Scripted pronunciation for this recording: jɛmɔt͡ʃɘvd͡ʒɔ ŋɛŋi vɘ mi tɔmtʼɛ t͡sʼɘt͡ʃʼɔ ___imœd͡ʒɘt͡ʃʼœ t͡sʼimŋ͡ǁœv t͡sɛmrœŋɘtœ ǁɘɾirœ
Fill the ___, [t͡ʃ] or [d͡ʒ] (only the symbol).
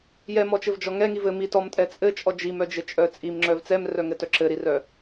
d͡ʒ